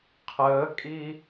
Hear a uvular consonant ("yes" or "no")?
yes